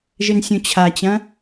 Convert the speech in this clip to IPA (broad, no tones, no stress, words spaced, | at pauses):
ʒɘnsʲũt͡ɕʰat͡ɕɐ̃